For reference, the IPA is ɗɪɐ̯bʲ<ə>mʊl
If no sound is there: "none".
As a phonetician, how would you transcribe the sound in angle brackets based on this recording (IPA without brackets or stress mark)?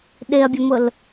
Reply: ə